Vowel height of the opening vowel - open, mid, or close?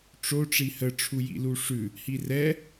mid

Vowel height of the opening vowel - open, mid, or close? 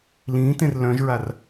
close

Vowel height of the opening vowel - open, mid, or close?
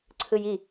close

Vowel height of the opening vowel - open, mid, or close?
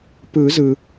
close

